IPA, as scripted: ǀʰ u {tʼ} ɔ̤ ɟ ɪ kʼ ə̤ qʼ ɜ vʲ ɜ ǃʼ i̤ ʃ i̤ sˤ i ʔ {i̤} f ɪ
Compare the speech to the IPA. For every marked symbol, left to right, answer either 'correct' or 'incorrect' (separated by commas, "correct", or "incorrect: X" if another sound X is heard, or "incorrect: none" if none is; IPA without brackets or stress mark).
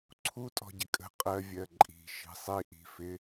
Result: correct, correct